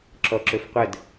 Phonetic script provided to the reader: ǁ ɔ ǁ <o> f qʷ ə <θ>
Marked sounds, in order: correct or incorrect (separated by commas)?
incorrect, incorrect